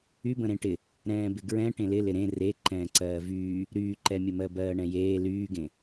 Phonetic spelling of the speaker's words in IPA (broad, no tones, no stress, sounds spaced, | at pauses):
y b ə̃ ɾ ẽ ʈ ɪ | ɾ ɛ̃ː b ɪ ɡ ɹ ɛ̃ ʈ ẽ l ɪ l ɪ ɾ ẽ r e ǃ ɛ̃ː ǀ ɜː v yː | ɾ yː ǃ ɛ mʲ ə m ɜ b ɜː ɳ ɛ̃ j eː l yː ɡ ẽ